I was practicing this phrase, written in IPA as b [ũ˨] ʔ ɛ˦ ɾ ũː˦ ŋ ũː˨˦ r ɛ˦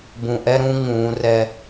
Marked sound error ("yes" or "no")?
no